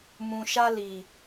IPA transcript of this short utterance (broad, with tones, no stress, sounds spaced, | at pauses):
m ũ˨ ʃ a˧ l i˨